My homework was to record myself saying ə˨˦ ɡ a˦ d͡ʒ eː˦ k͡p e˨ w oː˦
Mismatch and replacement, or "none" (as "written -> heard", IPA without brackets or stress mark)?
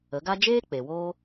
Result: none